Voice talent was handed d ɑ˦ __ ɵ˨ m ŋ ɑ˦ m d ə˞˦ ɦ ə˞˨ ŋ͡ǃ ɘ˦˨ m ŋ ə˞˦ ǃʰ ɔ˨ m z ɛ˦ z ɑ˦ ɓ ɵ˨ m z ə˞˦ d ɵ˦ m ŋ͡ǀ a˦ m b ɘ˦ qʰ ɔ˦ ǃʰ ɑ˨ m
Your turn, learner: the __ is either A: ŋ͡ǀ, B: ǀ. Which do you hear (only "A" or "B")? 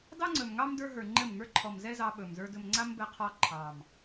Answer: A